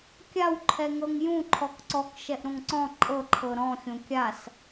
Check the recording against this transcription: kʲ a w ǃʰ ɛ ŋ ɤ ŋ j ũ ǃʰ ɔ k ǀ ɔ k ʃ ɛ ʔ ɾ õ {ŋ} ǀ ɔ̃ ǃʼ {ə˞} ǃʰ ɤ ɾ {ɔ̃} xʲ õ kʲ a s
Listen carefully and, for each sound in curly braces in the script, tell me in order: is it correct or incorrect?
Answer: correct, incorrect: ɤ, correct

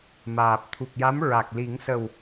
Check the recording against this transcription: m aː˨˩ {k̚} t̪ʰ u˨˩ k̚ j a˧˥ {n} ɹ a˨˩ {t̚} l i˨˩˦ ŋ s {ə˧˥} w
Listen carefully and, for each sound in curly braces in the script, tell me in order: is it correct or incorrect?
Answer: incorrect: p̚, incorrect: m, incorrect: k̚, incorrect: ə˨˩

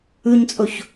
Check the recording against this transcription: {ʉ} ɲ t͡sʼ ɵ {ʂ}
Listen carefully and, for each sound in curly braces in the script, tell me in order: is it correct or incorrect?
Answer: correct, incorrect: ç

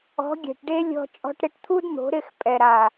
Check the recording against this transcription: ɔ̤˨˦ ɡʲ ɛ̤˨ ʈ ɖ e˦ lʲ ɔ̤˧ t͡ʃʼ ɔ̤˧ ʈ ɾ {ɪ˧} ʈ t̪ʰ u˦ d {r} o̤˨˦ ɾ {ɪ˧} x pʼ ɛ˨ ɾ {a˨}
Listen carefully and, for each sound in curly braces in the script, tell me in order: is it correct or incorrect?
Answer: correct, incorrect: n̪, incorrect: ɪ˦˨, correct

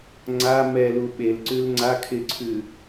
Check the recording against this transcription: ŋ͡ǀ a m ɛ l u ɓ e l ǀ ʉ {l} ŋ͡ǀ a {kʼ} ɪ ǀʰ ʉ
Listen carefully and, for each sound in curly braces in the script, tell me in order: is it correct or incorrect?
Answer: correct, incorrect: kʰ

